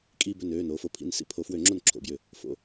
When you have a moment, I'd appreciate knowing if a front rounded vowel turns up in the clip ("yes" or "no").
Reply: yes